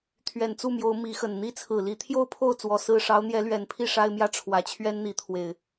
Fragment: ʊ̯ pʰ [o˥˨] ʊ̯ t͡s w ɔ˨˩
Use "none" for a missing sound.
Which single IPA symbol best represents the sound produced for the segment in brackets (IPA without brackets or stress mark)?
o˥˨